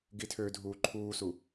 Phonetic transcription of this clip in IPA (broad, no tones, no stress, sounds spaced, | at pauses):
ɡ i tʰ ø dʱ uː ǃʰ uː s u